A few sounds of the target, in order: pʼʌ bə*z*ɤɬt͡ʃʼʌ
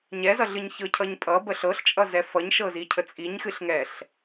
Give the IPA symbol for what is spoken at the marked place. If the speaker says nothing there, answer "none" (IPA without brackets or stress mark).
ɬ